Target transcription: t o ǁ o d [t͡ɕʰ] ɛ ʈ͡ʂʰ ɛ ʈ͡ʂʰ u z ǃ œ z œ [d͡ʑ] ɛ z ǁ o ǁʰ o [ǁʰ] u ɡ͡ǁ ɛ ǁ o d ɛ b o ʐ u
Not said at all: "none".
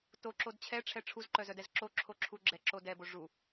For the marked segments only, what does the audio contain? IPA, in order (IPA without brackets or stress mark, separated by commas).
t͡ɕʰ, d, ǁʰ